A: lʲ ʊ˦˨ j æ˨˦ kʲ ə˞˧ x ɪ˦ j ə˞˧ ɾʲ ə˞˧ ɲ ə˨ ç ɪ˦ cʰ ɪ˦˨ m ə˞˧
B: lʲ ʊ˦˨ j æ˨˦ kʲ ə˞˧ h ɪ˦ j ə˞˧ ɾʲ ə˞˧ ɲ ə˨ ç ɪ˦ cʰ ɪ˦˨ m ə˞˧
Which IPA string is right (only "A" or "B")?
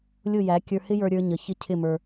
B